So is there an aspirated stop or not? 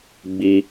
no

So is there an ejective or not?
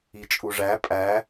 yes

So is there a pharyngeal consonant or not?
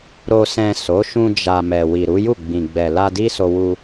no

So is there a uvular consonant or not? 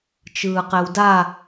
yes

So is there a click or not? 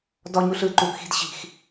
yes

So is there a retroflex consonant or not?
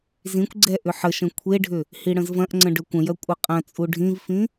yes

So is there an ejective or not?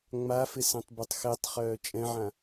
yes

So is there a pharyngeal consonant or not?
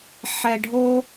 yes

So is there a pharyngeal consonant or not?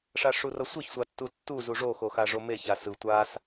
no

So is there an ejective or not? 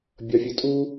yes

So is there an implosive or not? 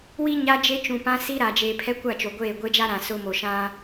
no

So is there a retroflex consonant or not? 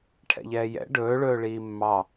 yes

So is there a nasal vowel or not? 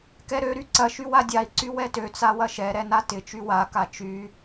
no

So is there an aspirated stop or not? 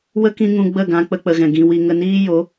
no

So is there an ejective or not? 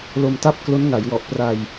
no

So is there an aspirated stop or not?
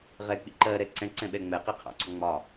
yes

